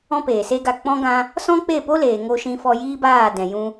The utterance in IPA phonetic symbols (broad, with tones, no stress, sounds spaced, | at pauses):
ɔ̃˦ p eː˨ s e˦ ɡ a˧ k͡p ɔ̃˦ ɡ ã˦ | s ɔ̃˦ k͡p e˦˨ p o˦ l eː˨ ŋ o˧ ʃ ĩ˧ f ɔ˧ j iː˦ b aː˦˨ d ɛ̃˨ j ũ˧